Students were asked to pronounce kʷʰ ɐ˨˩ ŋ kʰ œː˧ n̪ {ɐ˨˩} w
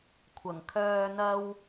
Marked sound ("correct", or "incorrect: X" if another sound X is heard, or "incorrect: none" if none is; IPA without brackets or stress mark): incorrect: ɐ˥